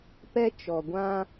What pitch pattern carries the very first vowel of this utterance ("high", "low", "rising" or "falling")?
high